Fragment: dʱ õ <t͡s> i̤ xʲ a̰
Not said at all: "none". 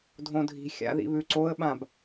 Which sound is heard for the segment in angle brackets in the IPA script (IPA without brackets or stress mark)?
dʱ